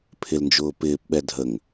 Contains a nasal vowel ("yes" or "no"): no